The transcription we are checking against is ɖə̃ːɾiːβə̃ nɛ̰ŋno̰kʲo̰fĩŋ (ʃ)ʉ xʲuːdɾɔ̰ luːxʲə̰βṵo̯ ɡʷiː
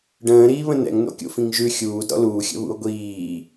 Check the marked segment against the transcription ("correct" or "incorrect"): incorrect